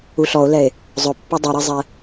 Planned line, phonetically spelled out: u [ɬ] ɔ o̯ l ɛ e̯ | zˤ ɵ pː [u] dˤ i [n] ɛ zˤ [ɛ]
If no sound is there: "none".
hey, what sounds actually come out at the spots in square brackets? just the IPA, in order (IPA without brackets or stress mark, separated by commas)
ɬ, u, ɾ, ɛ